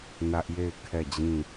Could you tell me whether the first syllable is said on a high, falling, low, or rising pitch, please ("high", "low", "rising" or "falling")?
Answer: high